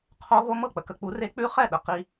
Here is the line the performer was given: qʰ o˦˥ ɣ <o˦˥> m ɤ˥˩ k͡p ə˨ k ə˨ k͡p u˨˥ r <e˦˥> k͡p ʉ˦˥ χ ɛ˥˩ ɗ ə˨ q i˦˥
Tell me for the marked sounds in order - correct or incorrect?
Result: correct, correct

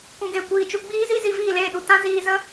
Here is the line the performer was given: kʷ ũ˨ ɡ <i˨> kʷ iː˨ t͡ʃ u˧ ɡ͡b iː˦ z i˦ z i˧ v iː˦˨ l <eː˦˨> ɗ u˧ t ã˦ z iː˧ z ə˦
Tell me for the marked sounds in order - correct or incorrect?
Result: incorrect: e˨, correct

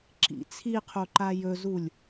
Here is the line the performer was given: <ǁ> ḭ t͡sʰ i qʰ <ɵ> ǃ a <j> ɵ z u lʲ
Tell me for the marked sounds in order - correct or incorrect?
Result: correct, incorrect: o, correct

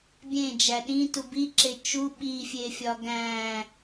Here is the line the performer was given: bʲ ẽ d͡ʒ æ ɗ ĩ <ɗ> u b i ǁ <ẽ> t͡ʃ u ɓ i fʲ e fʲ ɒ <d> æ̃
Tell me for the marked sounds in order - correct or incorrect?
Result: incorrect: t, incorrect: e, incorrect: ɡ

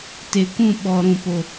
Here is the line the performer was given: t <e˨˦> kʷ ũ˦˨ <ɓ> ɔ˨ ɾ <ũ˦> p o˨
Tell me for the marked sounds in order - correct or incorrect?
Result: incorrect: e˨, correct, incorrect: ũ˨

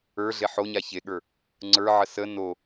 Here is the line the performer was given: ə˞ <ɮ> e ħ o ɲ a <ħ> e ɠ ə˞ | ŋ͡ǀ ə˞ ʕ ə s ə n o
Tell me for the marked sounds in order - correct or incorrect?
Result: correct, incorrect: ç

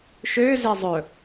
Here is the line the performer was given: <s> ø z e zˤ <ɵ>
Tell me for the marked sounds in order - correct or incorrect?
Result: incorrect: ʃ, correct

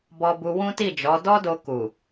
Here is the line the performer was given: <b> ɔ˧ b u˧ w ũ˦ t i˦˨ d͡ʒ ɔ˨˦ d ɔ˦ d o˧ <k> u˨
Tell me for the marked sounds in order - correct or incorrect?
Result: correct, correct

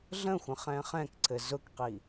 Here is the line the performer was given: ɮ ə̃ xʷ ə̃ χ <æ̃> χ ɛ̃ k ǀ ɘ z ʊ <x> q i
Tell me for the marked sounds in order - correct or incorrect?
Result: incorrect: ɛ̃, incorrect: k

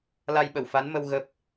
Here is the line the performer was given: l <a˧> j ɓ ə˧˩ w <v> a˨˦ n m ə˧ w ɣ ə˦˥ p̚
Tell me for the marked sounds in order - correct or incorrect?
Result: correct, incorrect: f

